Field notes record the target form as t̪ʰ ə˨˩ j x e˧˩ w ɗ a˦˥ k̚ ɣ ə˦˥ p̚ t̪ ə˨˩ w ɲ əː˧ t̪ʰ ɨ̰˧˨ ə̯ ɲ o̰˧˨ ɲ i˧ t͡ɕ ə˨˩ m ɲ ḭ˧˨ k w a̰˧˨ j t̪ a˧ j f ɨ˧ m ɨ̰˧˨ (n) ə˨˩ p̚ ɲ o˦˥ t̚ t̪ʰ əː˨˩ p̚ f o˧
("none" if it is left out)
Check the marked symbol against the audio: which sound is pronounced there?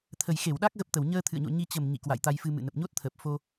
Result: n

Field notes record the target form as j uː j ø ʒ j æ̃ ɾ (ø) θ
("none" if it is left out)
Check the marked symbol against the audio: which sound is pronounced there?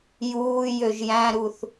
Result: u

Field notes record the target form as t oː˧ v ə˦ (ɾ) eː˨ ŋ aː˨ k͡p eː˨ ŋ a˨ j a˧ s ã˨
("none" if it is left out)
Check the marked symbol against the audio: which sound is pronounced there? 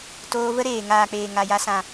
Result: ɾ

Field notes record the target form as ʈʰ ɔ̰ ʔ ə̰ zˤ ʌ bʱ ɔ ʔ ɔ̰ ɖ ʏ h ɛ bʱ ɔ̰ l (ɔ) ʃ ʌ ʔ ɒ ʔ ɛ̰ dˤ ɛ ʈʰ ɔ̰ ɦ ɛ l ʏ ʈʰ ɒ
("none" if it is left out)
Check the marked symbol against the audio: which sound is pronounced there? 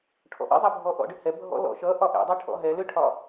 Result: ɔ̰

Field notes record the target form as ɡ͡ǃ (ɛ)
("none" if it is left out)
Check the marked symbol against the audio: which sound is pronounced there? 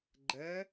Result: ɛ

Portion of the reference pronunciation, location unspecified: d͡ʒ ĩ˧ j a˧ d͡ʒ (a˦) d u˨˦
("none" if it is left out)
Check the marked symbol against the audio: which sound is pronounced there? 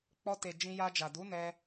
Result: a˨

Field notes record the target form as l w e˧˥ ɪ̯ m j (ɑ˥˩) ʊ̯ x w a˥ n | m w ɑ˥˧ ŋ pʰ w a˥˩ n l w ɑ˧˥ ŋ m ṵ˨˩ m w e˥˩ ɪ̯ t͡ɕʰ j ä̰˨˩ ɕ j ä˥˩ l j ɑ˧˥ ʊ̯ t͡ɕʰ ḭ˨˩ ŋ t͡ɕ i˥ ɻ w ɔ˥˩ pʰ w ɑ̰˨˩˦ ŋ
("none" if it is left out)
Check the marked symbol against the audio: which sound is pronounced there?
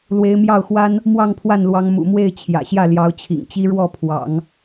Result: ɑ˥˩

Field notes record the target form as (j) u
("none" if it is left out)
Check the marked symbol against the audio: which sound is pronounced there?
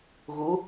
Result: ɣ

